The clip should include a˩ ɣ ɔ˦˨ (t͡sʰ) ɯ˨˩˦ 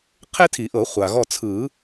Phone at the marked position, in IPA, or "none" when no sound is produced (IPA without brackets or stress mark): t͡sʰ